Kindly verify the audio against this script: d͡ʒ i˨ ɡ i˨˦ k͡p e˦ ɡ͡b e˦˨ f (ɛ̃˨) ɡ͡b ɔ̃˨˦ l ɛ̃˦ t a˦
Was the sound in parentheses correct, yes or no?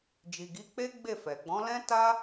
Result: no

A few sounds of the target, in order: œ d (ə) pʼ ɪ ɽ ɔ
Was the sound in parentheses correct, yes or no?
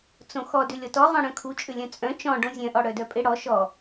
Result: no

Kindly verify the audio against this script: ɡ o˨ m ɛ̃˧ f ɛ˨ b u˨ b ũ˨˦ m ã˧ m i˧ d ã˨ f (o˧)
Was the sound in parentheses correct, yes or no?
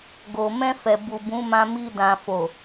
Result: no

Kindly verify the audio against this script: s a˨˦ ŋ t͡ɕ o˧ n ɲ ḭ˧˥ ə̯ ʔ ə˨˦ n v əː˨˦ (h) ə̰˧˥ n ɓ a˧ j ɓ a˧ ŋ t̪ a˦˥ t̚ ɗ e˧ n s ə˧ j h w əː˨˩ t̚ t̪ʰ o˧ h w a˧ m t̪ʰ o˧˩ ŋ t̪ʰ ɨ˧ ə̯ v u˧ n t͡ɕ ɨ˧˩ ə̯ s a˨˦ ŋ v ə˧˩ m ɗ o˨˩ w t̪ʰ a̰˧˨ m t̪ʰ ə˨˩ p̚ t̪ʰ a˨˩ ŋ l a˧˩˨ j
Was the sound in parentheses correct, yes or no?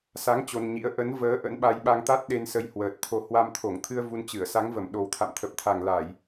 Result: no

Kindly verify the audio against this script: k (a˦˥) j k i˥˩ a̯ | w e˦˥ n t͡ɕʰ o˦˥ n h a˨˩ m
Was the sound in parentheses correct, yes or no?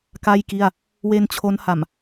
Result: no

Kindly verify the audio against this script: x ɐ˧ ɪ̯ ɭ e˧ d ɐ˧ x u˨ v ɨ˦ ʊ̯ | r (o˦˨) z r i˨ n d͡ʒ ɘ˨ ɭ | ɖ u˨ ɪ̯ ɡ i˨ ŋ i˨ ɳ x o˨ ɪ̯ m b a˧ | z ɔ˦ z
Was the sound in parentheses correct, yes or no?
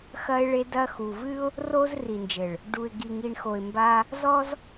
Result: no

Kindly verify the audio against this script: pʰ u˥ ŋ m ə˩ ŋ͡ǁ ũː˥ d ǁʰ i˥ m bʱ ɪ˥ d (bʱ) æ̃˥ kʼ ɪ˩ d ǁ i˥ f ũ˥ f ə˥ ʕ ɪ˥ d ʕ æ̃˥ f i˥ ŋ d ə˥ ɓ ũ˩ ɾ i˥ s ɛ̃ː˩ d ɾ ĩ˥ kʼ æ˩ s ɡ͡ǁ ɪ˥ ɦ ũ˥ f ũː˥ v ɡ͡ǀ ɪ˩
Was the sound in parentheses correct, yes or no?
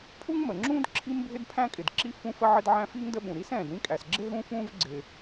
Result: no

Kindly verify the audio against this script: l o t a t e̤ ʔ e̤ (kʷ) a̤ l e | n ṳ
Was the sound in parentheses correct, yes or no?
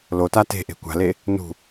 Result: yes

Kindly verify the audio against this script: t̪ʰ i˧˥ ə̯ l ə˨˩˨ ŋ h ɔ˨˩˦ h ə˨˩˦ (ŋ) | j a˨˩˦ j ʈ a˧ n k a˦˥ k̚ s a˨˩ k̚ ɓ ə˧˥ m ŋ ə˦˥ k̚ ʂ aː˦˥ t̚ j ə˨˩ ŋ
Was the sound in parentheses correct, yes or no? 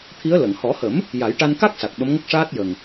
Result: no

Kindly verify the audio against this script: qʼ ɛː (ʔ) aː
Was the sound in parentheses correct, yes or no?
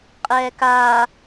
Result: no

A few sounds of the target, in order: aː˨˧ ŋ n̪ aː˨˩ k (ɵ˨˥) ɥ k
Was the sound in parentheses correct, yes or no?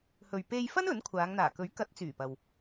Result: yes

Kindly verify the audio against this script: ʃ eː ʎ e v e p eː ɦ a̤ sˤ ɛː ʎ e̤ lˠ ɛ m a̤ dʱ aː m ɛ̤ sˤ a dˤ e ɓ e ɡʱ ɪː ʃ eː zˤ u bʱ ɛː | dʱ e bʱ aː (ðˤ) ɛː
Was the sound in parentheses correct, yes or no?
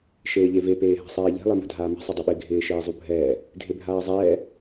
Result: no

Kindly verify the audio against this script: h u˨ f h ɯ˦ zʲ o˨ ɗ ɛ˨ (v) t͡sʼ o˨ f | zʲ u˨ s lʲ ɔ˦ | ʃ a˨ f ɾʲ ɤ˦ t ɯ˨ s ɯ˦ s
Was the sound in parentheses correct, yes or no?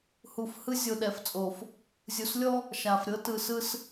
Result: no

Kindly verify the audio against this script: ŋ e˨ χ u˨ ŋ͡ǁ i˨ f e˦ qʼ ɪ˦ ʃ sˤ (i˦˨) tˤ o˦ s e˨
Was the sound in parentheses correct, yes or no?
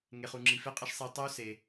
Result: no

